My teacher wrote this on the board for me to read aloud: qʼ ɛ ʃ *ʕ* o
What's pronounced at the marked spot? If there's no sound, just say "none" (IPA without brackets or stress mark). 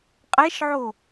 ʕ